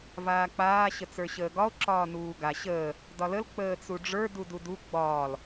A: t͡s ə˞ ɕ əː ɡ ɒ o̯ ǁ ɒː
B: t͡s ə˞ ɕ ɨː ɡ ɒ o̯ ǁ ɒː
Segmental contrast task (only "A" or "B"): A